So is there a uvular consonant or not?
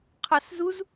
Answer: yes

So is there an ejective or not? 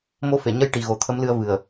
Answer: no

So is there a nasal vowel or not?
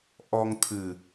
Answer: no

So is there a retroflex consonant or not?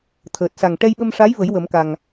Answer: yes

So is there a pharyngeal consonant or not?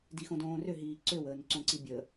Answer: no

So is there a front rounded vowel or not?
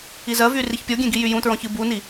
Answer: yes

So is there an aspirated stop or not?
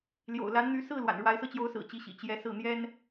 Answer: no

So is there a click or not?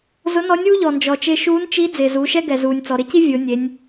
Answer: no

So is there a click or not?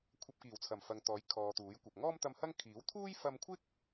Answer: no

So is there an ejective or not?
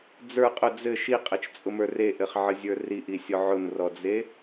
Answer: yes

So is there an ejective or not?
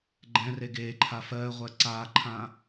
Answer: no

